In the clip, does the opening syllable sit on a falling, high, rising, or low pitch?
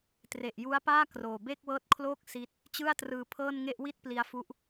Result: low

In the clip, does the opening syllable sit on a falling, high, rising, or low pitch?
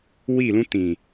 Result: falling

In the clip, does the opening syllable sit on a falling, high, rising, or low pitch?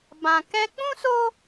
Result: low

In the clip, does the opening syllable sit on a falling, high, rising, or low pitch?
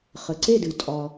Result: low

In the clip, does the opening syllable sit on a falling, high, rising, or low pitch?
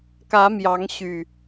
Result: rising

